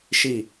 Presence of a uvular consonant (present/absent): absent